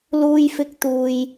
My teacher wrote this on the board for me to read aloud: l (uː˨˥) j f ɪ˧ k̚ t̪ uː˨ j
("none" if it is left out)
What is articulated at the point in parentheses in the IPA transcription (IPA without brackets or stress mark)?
uː˧